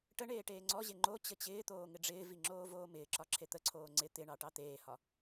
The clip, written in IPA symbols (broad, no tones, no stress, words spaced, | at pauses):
ʈəɳeː ʈeːŋ͡ǀɔʑe ŋ͡ǃo t͡ɕət͡ɕɪːt̪oː ŋɪɖ͡ʐɪːvi ŋ͡ǁoːvoːmɪːǁɒ ǁʰet̪əǀʰoː ŋ͡ǀɪ t̪ɪɳɑ ʈɑt̪eːhɒ